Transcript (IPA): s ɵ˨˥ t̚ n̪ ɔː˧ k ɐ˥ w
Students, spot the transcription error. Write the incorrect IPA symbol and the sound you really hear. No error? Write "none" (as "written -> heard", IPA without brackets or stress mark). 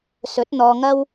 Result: k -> ŋ